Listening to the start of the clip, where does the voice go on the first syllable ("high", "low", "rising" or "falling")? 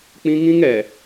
high